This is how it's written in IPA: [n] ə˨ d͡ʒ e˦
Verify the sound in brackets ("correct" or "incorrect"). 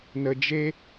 correct